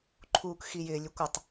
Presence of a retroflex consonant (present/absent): absent